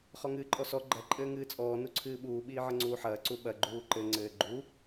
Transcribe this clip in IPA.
χ ɔ ŋ ɨː ǃʼ ɔ s ɔ ɡ͡ǃ ɐ ǃʼ ɘː ŋ ɨː t͡sʼ ɔː n u ǀʰ ɨː ɓ uː ɓ iː ʕ ɐ ŋ͡ǀ uː ħ ɐː ǀ u ɓ ɐ ɡ͡ǃ uː ǃ ɘ ŋ͡ǀ ɘː ɡ͡ǃ u

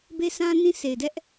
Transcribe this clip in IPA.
b e˦ sʰ ã˦ n ĩ˦ s e˨ ɪ̯ d ɛ˦ ʔ

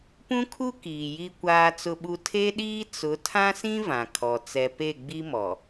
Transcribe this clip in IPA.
p ũ˦ kʰ u˦ k iː˨ j i˦ kʷ aː˦ t͡s ʊ˦ ɓ u˦ tʰ e˦ ɗ iː˦ t͡s ʊ˨˦ tʰ ã˦ s ĩ˦ v ã˨ kʰ ɔ˨ t͡s ɛ˨ p e˦˨ ɡ͡b i˦ m ɔ˨

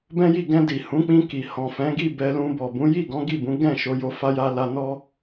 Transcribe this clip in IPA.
b ɛ̃˦ j i˦˨ ɡ ɛ̃˧ d i˨ h ũ˨˦ k͡p ĩ˧ k i˨ h ɔ̃˨ f ɛ̃˨˦ ɡ i˦˨ b ɛ˧ l ũ˧ b ɔ˨ b ũ˨˦ j i˦˨ ɡ ɔ̃˨˦ ɡ i˦˨ b ũ˨˦ ɡ ɛ̃˦˨ ʃ o˧ j o˧ f a˧ j a˧ l a˧ n ɔ˦

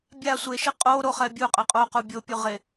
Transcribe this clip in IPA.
bʲ a sʷ e ʃ i qʼ o ɾ o χ ɛ bʲ u qʼ ɘ qʼ o q u bʲ o pʲ u ʁ e

